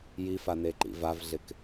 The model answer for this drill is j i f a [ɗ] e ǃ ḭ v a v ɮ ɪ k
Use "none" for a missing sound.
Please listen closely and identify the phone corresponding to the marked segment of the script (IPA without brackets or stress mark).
n